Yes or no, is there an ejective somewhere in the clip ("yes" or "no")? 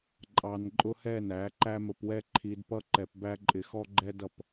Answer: yes